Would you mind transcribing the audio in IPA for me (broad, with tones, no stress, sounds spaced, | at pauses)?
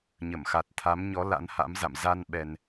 ɲ ə˧˩ m x a˨˩ t̚ t̪ʰ a˨˦ m ɲ ɔ˨˦ l a̰˧˥ n h a̰˧˥ m z a̰˧˨ m z a˧ n ɓ ɛ˧ n